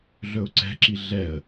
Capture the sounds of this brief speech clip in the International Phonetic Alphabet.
ɮ ɵ ʊ̯ ǀ ɛ̤ ǁ i ɮ ɛ ə̯

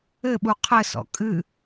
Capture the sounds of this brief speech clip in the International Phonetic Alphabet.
ɘ ɓ u qʰ ɘ s ɔ̰ kʼ ɨ

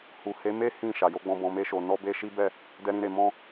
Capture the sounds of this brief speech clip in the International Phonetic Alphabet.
h u˨ h e˨˦ m e˦ h ĩ˦˨ ʃ a˨ j o˨˦ ɡ͡b ɔ̃˧ b ɔ̃˨ m e˧ ʃ o˨ n ɔ˧ b e˧ ʃ i˦ b ɛ˦˨ | d ɛ˧ ɾ ĩ˧ ɾ e˨ m ɔ̃˧

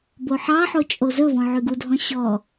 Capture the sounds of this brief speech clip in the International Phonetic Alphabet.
b o ħ ɑ ħ o t͡ʃʼ o z ɵ v ɔ̃ ʕ y ɡ u dʱ ɔ̃ ɕ ɔ

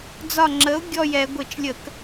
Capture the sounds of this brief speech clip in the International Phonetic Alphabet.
d͡z ɒ˧˩ ŋ͡ǁ ə˩˥ ʊ̯ ɡʲ ɔ˧˩ j ɛ˧˩˧ ɡʷ ɘ˧˩˧ t͡ʃ lʲ ə˧˩˧ k

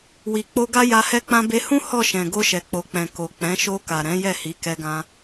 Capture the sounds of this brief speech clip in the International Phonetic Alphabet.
w i˨ k͡p o˧ ɡ a˦ j a˧ h ɛ˦ k͡p ã˦ b e˧ h ũ˦ h ɔ˦˨ ʃ ɛ̃˨ ɡ o˧ ʃ ɛ˨ k͡p o˨ k͡p ɛ̃˨ k o˨ k͡p ɛ̃˨˦ ʃ o˧ k a˨ ɾ ɛ̃˨˦ j ɛ˦˨ h i˨˦ k ɛ˧ ɡ ã˧

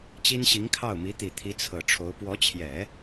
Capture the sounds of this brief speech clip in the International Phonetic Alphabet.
t͡ɕ i˥ n ɕ i˧˥ ŋ kʰ ɑ˥˩ ʊ̯ m i˧˥ t̪ i˨˩ t̪ʰ i˧˥ t͡sʰ ɤ˨˩ ʈ͡ʂʰ o˧˥ ʊ̯ p w ɔ˧˥ t͡ɕʰ j ɛ˨˩˦

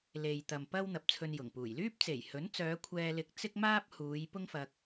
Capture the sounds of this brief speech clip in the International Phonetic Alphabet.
l e˨ j t̪ ɐ˨ m p ɐ˥ w n̪ ɐ˨ p̚ t͡sʰ ɵ˧ n j ʊ˨˩ ŋ p uː˨˩ j l yː˥ p̚ t͡s e˨˩ j h ɵ˨˥ n t͡s œː˨˧ kʷʰ ɛː˧ l ɪ˧ k̚ t͡s ɪ˥ k̚ m aː˥ p̚ h uː˨˧ j p ʊ˥ ŋ f ɐ˧ k̚

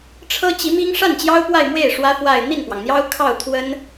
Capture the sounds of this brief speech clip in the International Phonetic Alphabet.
ʈ͡ʂʰ ɤ˥ t͡ɕ i˧˥ m i˥ ŋ ʂ a˥˩ n t͡ɕ j ɑ˥ ʊ̯ p w a˥˧ ɪ̯ m w e˥˩ ɪ̯ ʂ w ä˥ f w a˥˧ ɪ̯ n̪ i˥˩ n p w ɑ˩ ŋ n̪ j ɑ˥ ʊ̯ kʰ ɑ˥˩ ʊ̯ t̪ʰ w ə˥ n

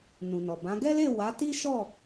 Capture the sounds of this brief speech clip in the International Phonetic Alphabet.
n ũ˨ n ɔ˨ b ã˨˦ ɡ ɛ˦ l e˦˨ w a˨˦ t i˦ ʃ ɔ˦˨

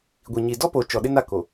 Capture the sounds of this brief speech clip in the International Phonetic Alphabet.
ɡʷ i˨ ɲ i˨ d ɔ˦ p o˨ t͡ʃ ɔ˨ ɗ ɪ˦ n a˦˨ k o˨

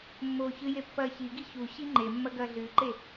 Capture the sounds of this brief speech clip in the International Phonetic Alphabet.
mː oː ç ɨ j e pː ɐː ç i ɡ i ç u ɕ i ŋ͡ǃ e mː ɐ ɡ ɐː ɮ ɨː ǃ e

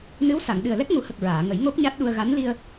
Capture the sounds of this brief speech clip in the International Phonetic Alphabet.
n ɨ˧˥ w s a˨˩˨ ŋ ɗ ɨ˨˩ ə̯ l ɛ˦˥ k̚ ŋ u˨˩˦ h ə˨˩ k̚ ɹ aː˨˩˨ ŋ ə˨˩˦ j ŋ o˦˥ p̚ ɲ a˦˥ t̚ ɗ u˧ ə̯ ɣ a˧˥ n l i˧ ə̯

